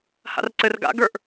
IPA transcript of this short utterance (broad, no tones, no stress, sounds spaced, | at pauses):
h a̰ r ǀ ɘ r ɡ a̰ ɡ ə˞ ʔ